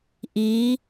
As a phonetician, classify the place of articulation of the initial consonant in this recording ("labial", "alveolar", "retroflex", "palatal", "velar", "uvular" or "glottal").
glottal